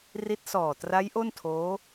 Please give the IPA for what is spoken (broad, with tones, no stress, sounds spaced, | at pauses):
r i˦˥ t̚ s ɔː˨˩ t r a˦˥ j ʔ o˥˩ n tʰ oː˦˥